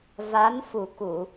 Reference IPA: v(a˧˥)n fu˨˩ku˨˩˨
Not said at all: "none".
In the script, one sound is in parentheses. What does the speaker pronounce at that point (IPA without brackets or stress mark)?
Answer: a˧˥